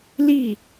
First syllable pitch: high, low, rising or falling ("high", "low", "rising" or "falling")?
falling